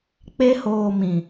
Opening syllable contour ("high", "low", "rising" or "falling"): high